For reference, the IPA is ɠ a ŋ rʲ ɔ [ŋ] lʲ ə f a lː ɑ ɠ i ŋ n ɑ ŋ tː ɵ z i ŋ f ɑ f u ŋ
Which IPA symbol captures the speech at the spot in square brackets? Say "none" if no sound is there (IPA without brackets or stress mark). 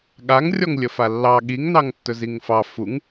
ŋ